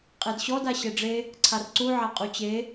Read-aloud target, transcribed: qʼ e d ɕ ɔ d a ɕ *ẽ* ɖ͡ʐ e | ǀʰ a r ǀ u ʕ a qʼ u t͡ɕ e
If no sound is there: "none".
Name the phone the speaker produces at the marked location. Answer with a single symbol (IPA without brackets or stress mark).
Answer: e